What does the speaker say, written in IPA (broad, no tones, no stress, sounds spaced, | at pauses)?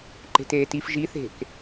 ǃ e̤ t eː t i f ʒ i θ e̤ k